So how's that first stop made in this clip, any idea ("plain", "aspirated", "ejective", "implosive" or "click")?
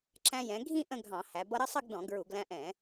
click